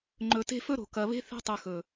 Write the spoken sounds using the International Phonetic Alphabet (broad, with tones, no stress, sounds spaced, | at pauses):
ŋ͡ǃ ɵ˨ t e̤˦ f ɵ˦ ɾ o̤˨ k ɐ˨ β e̤˦ θ e̤˦ tˤ ʉ˨ x ɵ˨